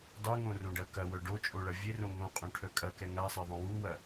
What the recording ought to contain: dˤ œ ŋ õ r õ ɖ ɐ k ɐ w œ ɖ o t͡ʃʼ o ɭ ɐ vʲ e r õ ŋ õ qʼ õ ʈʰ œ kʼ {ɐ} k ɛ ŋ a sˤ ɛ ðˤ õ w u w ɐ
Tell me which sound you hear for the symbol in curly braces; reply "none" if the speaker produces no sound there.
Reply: ɐ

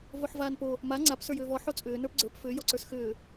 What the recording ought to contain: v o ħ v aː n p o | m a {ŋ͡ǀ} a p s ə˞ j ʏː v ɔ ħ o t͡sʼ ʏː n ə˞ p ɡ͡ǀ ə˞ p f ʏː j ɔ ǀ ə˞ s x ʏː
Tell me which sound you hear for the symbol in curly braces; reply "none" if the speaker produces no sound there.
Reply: ŋ͡ǀ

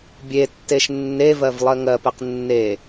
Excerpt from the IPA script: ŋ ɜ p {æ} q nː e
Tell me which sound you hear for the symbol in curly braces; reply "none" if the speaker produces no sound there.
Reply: ɛ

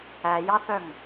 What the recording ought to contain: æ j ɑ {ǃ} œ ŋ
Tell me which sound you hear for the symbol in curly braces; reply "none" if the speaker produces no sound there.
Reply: θ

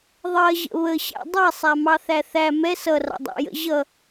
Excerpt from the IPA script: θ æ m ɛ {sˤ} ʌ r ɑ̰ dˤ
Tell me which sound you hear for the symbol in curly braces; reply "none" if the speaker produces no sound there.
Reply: s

